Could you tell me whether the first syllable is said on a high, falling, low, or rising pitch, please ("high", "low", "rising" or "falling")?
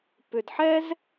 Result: low